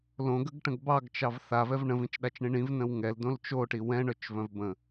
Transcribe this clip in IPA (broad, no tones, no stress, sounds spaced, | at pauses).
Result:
l õ ɡ ə ɡ ʈ ə̃ ɡ b ɑ ɡ t͡ʃ ɑ v θ a v ɛ v ɳ ə̃ v ĩ t͡ʃ ɗ a t͡ʃ ɳ ĩ ɳ ĩ v n ə̃ w ŋ ɛ l d õ l t͡ʃ o ʈ i w ɛ̃ ɳ œ t͡ʃ v œ̃ v b ə̃